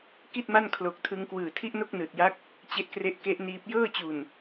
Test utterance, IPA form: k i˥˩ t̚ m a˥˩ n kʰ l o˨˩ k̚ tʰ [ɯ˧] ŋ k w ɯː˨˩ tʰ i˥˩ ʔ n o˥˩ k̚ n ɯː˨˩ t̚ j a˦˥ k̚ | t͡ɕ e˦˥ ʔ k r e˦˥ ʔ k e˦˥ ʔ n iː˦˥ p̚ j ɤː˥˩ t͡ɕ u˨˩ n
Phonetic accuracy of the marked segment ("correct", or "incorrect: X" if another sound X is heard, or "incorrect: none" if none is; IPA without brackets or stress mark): correct